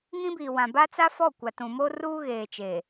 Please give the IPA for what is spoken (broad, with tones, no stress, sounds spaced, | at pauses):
ŋ ĩ˦ b iː˨ w ã˨ b a˦ t͡s a˦ f ɔ˦˨ kʷ a˨ t ũ˨ m oː˦ r uː˦ ɣ eː˨ t͡ʃ eː˨